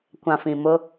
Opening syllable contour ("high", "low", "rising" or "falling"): low